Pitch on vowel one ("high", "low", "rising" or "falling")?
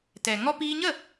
low